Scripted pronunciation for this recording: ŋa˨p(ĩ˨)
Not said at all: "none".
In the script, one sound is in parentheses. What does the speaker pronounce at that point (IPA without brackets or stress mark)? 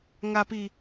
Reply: i˨